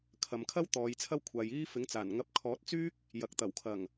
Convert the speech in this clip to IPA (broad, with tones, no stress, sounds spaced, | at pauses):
kʰ ɐ˨ m kʰ ɐ˥ w t̪ ɔː˨˧ j t͡sʰ ɐ˥ w kʷʰ aː˨ j iː˥ f ɪ˨˥ ŋ t͡s aː˨˩ n ŋ ɐ˧ p̚ kʰ ɔː˨˥ t̚ t͡s yː˥ k̚ | j ɐ˨ k̚ t̪ ɐ˨˩ w kʰ ɐ˨˩ ŋ